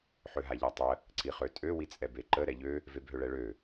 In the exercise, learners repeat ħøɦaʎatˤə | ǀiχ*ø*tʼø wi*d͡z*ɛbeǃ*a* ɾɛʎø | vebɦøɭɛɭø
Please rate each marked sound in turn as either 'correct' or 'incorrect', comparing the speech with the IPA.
correct, incorrect: t͡sʼ, incorrect: ə

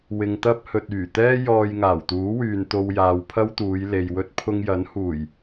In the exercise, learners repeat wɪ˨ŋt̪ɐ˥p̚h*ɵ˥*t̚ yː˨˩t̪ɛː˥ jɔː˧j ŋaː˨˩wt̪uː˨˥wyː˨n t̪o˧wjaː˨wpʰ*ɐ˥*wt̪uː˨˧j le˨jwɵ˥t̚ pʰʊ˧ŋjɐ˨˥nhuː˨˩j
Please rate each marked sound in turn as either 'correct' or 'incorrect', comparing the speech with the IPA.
incorrect: ɵ˨, correct

